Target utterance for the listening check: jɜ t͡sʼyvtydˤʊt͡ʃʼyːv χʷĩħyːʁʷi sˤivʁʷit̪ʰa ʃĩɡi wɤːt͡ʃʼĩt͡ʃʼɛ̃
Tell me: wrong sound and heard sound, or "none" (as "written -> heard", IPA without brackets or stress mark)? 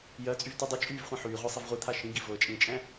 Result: w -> v